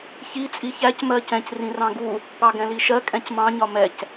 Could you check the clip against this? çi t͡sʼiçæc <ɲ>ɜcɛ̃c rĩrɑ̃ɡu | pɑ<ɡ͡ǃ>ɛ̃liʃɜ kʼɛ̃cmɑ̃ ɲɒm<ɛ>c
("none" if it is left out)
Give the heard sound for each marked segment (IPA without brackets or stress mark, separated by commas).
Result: m, ɡ, ɛ